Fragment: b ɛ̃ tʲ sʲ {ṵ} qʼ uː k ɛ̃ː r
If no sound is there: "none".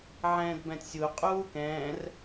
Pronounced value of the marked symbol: u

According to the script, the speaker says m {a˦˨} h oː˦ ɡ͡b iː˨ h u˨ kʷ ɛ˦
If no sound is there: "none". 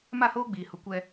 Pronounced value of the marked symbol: a˦˨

